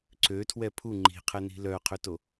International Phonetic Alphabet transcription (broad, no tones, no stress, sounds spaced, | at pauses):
ǀ ø tʰ w ɛ pʰ u ŋ͡ǃ i̤ qʰ ɛ n i̤ l œ qʰ ø t o